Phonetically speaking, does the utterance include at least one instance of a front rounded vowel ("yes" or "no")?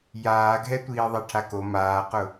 no